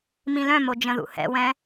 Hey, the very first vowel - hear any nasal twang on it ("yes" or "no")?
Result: yes